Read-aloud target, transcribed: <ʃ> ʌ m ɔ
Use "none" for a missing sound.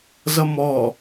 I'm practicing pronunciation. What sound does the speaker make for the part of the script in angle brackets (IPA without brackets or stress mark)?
z